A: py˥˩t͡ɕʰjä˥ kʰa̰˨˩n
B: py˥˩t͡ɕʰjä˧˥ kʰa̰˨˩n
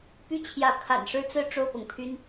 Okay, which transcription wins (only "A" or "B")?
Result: B